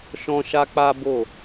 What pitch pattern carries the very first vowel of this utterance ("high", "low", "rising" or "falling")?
high